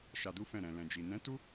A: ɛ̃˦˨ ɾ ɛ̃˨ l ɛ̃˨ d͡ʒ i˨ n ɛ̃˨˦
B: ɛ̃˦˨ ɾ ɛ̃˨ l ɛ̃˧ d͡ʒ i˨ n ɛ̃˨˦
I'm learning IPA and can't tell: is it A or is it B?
A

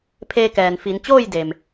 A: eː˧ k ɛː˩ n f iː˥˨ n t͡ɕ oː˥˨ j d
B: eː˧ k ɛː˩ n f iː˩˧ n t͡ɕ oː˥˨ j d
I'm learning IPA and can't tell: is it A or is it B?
B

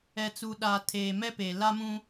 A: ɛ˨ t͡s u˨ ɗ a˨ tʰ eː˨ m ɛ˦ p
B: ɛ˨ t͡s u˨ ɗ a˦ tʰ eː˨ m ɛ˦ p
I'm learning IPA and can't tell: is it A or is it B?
A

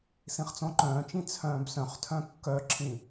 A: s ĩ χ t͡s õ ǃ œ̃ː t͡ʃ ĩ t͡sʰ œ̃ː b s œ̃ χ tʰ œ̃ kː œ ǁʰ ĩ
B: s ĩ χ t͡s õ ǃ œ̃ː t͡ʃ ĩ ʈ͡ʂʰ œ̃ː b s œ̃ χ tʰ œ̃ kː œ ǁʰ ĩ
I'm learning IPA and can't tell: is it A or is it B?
A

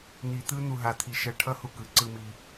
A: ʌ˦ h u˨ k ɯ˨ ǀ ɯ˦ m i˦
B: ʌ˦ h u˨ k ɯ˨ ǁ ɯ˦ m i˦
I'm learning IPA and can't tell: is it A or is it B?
A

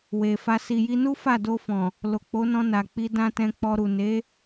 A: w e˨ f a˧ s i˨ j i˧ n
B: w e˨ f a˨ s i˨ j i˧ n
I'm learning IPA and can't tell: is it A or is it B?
A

